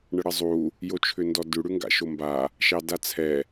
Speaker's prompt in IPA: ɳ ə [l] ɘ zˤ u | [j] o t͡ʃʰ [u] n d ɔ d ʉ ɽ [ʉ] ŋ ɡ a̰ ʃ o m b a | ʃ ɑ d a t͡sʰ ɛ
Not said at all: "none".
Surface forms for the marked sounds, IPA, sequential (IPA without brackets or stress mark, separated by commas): ɽ, j, ʏ, ʉ